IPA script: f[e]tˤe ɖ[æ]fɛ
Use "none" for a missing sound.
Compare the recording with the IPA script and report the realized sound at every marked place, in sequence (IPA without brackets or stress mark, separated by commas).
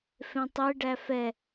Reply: ẽ, æ